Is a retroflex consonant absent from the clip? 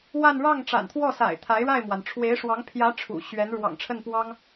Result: no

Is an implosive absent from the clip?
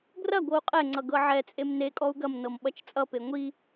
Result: no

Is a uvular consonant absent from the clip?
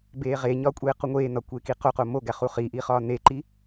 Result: no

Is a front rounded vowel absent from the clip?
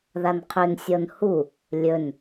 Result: no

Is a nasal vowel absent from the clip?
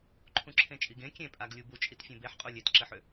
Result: no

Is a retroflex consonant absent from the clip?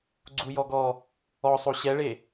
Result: no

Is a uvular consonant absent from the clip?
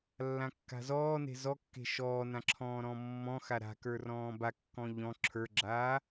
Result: yes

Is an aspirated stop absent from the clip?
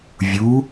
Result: yes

